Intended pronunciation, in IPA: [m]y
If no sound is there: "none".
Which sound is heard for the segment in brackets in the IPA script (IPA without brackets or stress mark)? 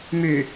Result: m